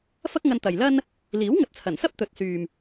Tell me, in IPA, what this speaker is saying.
f ɐ˥ k̚ ŋ ɐ˧ n t̪ ɐ˨ j l ɐ˥ n | l iː˨˥ w ŋ ɐ˨ t̚ t͡sʰ ɐ˨˩ n s ɐ˥ p̚ t̪ ɵ˨ t̚ s yː˨ m

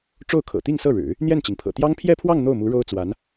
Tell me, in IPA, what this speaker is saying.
ʈ͡ʂ o˥˩ ʊ̯ kʰ ɤ̰˨˩ t̪ i˥˧ ŋ s ɤ˥˩ ɻ ɻ̩˨˩˦ | n̪ j ɛ˥˩ n t͡ɕ i˩ ŋ pʰ ɤ̰˨˩ t̪ j ɑ˥ ŋ pʰ j ɛ˥˧ pʰ w ɑ˥˧ ŋ n̪ o˥˩ ʊ̯ m u˧˥ ɻ o˥ ʊ̯ t͡s w a˧˥ n

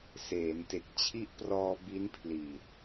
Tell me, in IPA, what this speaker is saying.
s eː˩˦ n t e˨˩ k̚ t͡ɕʰ i˦˥ ʔ p r ɔː˧ b i˦˥ n pʰ l iː˨˩ t̚

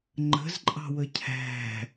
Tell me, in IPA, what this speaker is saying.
ŋ͡ǃ ə̤ z ǃʼ ɑ̤ w ə cʰ æ̤

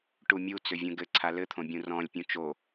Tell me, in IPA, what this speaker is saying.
ʈ u mʲ u t͡s ʏ vʲ ũ ɡ ɘ ǀʰ a l ɘ t̪ʰ õ bʲ ũ r ɔ̃ lʲ pʲ ũ t͡ʃ o

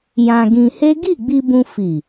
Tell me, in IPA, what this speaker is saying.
j ã˧ ɡ ĩ˧ h e˦ ɡ i˦˨ ɡ͡b i˧ b ũ˧ f i˨

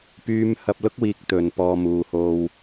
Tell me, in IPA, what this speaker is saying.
p yː˥ m h ɐ˧ p̚ l ʊ˥ k̚ w iː˨ k̚ t̪ ɵ˨ n p ɔː˧ m uː˨ h o˧ w

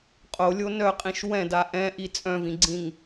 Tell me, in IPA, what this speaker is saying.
qʼ o lʲ o n œ qʼ ĩ ʃ w ɛ̃ d a ʔ ɛ̃ ʔ i t͡sʼ œ̃ v ĩ ɡ͡ǀ ĩ ŋ

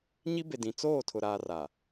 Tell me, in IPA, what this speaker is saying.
ɲ i˦ b e˨ d ĩ˨ t͡s oː˦˨ tʰ ʊ˨ ɾ aː˨ r a˨

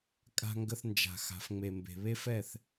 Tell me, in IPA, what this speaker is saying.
kʼ a̤˧ ŋ ɡ ə˧ θ n d͡ʒ a̤˨ x a̤˨ f ŋ͡m e˨ m b e̤˨ β e˦ f ɛ˦˨ θ

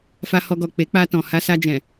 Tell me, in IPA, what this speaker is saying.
f a˧ h ɔ˧ ɡ ɔ˨ k͡p e˨˦ k͡p a˧ t ɔ̃˨ h a˧ s a˧ d͡ʒ ɛ̃˨

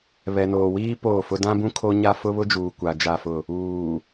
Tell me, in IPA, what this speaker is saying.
β ɛ˨ n oː˨ w iː˦ p oː˦˨ f ʊ˦ d ã˦ b ũ˦ kʰ o˦ ɲ a˦ f ʊ˦ β ʊ˦ d͡ʒ uː˨ kʷ a˨ d͡ʒ a˦˨ f ʊ˦˨ | uː˨

